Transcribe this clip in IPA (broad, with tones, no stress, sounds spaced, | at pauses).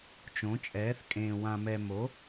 t͡ʃ õ˩˥ t͡ʃʼ ɛː˩˥ θ kʼ ẽː˨ w ã˨ m ɛ˨ m o˩˥